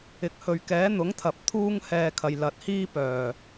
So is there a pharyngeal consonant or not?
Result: no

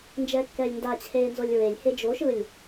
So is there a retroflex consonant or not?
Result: no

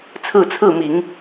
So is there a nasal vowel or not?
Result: no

